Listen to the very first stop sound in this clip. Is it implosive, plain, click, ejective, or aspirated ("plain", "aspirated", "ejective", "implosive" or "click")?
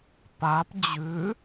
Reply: plain